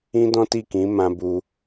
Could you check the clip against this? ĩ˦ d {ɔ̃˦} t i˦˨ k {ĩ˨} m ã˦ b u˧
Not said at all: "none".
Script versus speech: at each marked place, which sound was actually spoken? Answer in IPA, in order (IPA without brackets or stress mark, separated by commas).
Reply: ɔ̃˦, ĩ˨˦